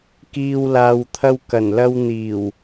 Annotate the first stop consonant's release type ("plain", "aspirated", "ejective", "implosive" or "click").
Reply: plain